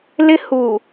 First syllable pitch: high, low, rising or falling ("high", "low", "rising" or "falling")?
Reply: high